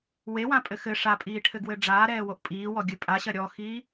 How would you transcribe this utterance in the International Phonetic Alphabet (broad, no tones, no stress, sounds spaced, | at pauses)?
w e w ã pʼ ɘ x ɘ ʂ a pʼ iː ʈʰ ɘ ɡ w ɘ ɖ͡ʐ aː ɾ ɛː w o ʔ pʼ iː w ɔ ɡʲ ɨ pʼ a ɕ ɐ ɾʲ ɔ x i